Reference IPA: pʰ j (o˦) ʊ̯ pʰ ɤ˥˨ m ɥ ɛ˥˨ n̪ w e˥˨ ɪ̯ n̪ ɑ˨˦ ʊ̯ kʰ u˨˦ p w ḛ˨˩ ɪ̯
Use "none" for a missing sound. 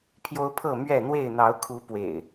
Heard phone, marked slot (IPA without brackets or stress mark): o˦